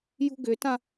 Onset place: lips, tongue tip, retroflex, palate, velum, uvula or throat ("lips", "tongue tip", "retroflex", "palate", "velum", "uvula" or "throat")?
palate